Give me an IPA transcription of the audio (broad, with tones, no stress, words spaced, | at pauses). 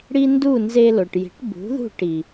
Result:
ɽi˥ ndu˥˩ nze˧ lo˩ʈji̤˩˥ʈ bṳ˩˥ðṳ˥˩ʈ i˩